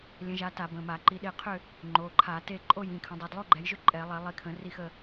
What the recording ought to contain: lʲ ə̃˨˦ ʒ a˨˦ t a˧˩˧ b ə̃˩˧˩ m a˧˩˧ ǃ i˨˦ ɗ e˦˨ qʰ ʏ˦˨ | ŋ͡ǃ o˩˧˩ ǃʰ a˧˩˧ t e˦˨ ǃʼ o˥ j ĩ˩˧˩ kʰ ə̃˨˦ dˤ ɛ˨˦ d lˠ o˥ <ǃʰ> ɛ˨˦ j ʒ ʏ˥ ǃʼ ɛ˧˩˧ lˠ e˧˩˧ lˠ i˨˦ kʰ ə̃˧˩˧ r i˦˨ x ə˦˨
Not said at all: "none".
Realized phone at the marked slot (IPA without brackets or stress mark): ɡ͡ǃ